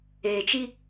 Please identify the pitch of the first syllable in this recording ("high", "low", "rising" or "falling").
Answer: low